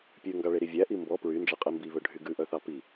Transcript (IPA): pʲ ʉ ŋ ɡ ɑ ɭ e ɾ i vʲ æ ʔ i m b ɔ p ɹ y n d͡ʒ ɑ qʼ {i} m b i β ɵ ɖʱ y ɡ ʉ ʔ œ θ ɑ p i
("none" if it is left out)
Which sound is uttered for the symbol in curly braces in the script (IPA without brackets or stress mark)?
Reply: i